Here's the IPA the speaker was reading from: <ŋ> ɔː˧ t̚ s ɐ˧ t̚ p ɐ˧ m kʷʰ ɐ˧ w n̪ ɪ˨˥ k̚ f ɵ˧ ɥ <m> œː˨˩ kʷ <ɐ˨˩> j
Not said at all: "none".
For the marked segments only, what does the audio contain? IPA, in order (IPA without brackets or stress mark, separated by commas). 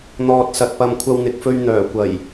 n̪, n̪, ɐ˨˩